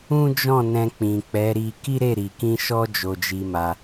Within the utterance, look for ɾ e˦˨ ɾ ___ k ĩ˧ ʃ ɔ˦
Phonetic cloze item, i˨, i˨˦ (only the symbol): i˨